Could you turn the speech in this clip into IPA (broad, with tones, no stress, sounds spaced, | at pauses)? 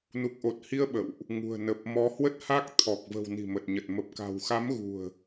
n u˨˩ k̚ ʔ o˨˩ t̚ h i˧ ə̯ ɓ ə̰˧˨ w ʔ | ŋ ṳ˨˩ ə̯ n ə˨˩ p̚ m ɔ˨˦ h w ə˦˥ t̚ h a˦˥ k̚ t̪ʰ ɔ˨˩ k̚ v ə̤˨˩ w n i̤˨˩ m ə˨˩ t̚ ɲ ə˨˩ t̚ m ə˨˩ p̚ k a̤˨˩ w x a˨˦ m ɣ ṳ˨˩ ə̯